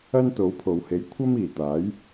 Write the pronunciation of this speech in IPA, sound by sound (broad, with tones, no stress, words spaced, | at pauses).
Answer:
ɐ˥nt̪o˨˥wpʰo˨whe˨˥j kʷʰɐ˥m iː˨t̪aː˨˥j